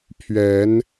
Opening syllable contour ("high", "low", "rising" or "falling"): rising